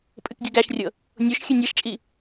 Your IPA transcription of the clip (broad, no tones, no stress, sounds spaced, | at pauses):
pʼ ɨ k ɡ i ɡ æ ʃ rʲ ɤ | nʲ o ʃ xʲ ɨ nʲ ɤ ʃ t͡ʃʼ i